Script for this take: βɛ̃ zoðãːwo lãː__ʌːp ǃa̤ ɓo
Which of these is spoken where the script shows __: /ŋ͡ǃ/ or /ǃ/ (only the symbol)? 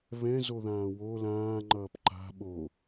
ŋ͡ǃ